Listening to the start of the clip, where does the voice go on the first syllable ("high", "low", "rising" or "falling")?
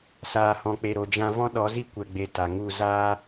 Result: low